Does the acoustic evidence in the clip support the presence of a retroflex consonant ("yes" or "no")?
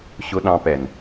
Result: no